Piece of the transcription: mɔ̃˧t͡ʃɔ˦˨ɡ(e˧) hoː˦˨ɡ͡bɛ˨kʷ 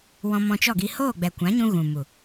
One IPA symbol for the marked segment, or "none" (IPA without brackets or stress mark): i˧